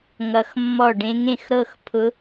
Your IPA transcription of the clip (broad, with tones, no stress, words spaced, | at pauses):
ŋʌ˧˥xmːɔ˥˩ ɖẽ˧˥ŋẽ˥˩xɾɤ˥˧xpʰʊ˧˥